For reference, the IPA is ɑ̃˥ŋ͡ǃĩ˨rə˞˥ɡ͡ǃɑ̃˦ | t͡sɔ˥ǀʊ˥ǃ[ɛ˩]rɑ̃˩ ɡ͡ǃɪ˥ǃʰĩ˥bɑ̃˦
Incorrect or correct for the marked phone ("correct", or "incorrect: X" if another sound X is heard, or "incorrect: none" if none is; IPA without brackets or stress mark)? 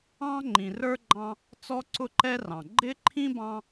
incorrect: ɛ˥